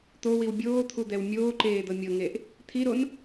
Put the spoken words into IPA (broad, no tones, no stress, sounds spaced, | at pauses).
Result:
t̪ o w i w bʲ oː t̪ʰ u d̪ ɛ w mʲ oː ǃ eː d̪ ɤ mʲ ɤ ŋ e ʔ | t̪ʰ i ɾ o n